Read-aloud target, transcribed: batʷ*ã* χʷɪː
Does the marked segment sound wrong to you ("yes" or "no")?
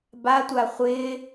yes